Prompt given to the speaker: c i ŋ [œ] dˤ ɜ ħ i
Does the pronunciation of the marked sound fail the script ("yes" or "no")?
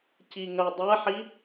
no